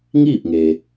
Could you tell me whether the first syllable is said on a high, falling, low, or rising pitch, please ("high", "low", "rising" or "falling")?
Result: falling